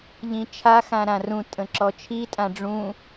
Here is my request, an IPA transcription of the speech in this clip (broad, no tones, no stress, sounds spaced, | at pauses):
ʎ ĩ t͡ʃʰ a x ã ɾ ã r ũ tʼ ə̃ ǁ ɔ t͡ʃʰ i tʼ ã ɖ͡ʐ ũ